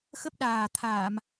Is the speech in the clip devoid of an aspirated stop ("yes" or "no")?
no